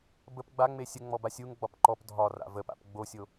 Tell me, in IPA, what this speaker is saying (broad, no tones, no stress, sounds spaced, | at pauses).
b ə p ɡ͡b a ŋ͡m e sʲ ə ŋ͡m ɔ b a sʲ u ŋ ɡ͡b ɒ p ǃ ɔ p dʱ ɒ r a̰ v ə p a̰ p ɡ͡b o sʲ o